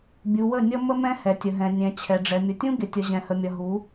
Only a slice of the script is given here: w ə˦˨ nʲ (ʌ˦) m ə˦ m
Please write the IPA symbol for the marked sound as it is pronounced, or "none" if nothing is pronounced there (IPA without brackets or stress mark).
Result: ʌ˦